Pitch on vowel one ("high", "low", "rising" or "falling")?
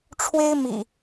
high